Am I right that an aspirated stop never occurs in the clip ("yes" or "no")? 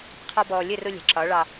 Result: no